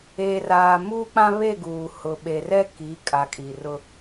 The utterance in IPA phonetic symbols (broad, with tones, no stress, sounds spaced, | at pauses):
eː˨ r aː˨ m uː˦ k͡p ã˦ β e˦˨ ɡ uː˨ h ʊ˨ ɓ e˨ r ɛ˦ k i˨˦ kʼ a˨ kʼ i˨ r ʊ˦